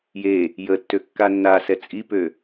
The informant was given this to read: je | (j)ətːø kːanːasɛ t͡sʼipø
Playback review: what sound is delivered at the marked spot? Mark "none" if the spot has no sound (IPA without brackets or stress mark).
j